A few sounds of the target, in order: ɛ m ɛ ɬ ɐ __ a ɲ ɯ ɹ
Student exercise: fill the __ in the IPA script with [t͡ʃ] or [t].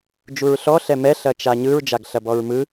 t͡ʃ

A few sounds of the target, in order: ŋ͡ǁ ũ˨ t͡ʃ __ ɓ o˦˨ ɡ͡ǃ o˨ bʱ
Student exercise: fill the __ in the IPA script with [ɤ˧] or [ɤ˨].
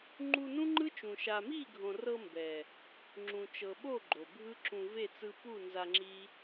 ɤ˨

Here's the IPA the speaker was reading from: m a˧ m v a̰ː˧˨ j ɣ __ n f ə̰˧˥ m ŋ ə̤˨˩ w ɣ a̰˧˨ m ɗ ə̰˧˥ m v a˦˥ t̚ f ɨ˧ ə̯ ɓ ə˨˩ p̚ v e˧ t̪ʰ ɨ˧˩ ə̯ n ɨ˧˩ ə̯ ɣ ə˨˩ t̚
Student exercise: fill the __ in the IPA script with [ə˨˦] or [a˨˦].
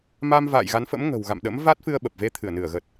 a˨˦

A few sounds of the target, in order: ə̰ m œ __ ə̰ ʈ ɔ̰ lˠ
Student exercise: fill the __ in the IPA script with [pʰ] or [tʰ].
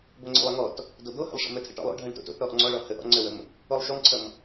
tʰ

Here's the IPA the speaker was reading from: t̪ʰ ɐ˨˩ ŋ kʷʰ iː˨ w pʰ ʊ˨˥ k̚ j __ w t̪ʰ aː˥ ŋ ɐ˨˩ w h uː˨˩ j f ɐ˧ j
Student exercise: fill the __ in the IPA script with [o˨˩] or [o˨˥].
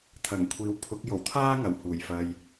o˨˩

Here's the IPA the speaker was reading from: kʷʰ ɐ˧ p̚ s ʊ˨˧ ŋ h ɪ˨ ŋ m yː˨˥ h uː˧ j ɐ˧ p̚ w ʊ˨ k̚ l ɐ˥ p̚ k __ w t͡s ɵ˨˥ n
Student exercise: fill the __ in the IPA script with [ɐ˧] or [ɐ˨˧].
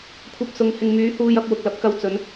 ɐ˧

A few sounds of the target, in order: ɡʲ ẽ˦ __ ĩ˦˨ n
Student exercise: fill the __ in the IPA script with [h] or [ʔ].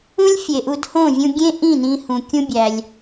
ʔ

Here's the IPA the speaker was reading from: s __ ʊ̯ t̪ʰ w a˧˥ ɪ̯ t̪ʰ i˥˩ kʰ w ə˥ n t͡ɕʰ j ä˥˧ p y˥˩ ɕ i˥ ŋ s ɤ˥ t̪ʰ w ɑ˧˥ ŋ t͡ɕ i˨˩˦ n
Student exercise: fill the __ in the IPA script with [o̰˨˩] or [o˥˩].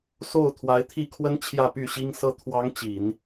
o˥˩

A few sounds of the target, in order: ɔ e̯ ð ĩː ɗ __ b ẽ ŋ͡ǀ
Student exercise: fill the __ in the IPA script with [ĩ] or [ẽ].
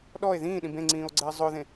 ĩ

